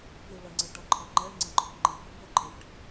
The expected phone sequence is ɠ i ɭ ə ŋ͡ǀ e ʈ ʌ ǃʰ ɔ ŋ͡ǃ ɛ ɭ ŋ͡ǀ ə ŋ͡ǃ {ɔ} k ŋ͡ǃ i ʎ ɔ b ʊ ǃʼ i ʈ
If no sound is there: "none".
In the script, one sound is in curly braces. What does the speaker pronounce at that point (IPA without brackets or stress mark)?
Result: ɔ